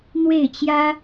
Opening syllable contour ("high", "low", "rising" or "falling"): falling